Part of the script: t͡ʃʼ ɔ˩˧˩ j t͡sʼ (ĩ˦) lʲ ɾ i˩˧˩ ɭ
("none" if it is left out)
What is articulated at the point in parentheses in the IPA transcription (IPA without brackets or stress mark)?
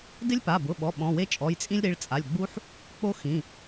ĩ˦